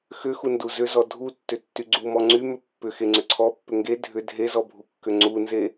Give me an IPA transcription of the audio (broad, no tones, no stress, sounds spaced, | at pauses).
x ʏ x u n d u z ʏ z ɔ dʱ u tː ʏ tː y ɡ͡ǀ u m ɔ ŋ͡ǀ y m ʏ pː ʏ x e ŋ͡ǀ ʏ ǀʰ ɔ pː ʏ ŋ ɡ e dʱ ʏ dʱ e z ɔ bʱ u kː ʏ ŋ͡ǀ u n z e